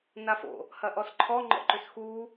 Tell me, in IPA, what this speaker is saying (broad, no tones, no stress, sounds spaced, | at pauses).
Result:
n a f o̰ | h ɐ ʔ ɔ s ǃʰ ɔ ŋ͡ǃ ɔ̰ ǃ ʏ s x u